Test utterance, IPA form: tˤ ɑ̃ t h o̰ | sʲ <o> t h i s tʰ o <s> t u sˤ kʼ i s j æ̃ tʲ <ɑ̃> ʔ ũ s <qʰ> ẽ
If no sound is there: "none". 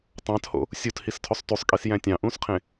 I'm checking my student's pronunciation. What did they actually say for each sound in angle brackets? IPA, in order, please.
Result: u, sˤ, ɑ̃, qʰ

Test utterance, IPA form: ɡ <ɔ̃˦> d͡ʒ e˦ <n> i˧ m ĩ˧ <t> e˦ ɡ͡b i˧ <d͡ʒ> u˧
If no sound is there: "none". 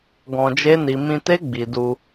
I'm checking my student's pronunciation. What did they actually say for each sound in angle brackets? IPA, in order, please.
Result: ɔ̃˧, n, t, d

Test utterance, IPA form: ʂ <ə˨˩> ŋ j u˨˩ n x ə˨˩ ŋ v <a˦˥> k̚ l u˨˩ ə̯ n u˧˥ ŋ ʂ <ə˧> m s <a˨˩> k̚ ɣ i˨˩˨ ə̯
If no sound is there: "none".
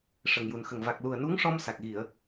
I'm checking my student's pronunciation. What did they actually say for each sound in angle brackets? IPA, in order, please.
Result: ə˨˩, a˨˩, ɔ˧, a˨˩

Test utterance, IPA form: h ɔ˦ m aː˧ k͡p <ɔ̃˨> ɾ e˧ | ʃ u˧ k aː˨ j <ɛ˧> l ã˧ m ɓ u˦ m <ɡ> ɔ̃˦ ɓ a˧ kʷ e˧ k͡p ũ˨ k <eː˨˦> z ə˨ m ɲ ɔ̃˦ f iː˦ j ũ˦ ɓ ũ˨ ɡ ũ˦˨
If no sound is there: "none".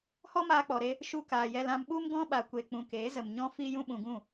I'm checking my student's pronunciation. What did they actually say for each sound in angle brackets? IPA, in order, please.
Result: ɔ˨, ɛ˧, ɡ, eː˨˦

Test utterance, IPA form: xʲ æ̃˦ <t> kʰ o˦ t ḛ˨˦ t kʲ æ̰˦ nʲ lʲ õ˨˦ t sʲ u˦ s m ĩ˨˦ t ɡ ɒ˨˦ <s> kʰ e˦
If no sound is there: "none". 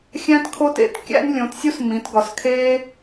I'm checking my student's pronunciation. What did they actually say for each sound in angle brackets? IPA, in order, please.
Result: t, s

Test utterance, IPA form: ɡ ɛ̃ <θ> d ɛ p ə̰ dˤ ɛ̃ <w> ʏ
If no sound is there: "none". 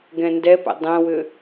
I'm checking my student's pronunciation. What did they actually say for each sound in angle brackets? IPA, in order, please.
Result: n, w

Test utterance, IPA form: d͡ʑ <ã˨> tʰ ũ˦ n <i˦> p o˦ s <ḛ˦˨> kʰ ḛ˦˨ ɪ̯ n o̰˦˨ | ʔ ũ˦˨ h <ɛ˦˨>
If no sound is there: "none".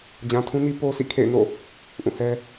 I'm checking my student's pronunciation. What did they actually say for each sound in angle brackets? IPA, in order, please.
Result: ã˨, i˦, ḭ˦˨, ɛ˦

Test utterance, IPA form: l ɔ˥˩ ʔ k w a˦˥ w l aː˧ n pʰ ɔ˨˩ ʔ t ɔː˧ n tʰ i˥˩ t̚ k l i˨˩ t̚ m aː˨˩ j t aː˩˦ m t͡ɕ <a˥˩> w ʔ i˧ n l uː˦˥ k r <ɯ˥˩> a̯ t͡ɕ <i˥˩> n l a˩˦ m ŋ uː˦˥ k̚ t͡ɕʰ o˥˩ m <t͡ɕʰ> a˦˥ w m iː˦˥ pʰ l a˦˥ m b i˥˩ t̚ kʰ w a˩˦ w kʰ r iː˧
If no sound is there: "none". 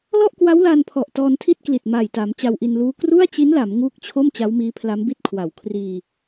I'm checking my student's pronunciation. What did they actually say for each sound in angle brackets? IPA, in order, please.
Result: a˧, u˥˩, i˦˥, t͡ɕ

